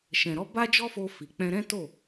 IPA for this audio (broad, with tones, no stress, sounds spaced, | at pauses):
ʃ ɛ̃˨ ɾ ɔ˧ b a˦ d͡ʒ ɔ˦ f o˧ f i˨ k͡p ɛ̃˧ ɾ ɛ̃˦ t o˦˨